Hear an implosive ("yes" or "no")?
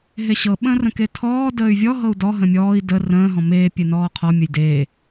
yes